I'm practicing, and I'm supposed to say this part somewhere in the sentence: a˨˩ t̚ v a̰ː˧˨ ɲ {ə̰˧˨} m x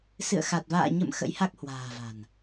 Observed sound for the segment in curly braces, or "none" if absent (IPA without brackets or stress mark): ə̰˧˨